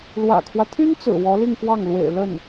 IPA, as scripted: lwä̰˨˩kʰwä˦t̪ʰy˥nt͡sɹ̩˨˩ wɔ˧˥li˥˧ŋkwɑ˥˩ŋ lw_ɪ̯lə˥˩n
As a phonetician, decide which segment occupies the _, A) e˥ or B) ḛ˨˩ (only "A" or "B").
B